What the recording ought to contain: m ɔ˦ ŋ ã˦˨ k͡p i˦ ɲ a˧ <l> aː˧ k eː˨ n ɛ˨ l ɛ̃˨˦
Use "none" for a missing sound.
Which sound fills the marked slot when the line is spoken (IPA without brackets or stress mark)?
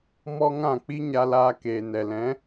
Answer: l